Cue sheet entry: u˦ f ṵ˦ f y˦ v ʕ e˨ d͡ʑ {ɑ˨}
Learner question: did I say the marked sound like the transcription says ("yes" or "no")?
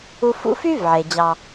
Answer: no